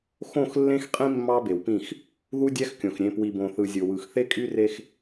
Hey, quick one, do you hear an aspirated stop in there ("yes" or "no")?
no